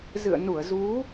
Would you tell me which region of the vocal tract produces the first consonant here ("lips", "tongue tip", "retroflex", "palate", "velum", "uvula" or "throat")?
tongue tip